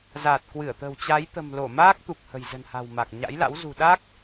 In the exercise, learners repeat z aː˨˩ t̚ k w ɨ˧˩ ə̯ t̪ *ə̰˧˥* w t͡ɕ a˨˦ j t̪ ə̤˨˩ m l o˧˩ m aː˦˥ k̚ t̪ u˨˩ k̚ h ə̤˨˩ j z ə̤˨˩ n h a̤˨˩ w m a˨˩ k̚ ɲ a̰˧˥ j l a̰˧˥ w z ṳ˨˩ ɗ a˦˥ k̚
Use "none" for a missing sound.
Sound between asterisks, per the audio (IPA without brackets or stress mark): ə̤˨˩